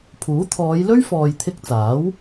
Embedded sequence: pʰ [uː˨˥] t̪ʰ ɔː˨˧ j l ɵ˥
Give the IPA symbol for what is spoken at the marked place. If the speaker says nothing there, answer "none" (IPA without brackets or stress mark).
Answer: uː˨˥